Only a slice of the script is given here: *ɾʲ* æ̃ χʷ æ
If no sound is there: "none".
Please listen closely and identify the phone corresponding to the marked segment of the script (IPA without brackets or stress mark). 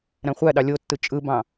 ɾ